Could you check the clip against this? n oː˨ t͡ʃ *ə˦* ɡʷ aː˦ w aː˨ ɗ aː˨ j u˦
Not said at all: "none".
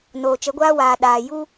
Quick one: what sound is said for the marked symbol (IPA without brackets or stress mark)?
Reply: ə˨˦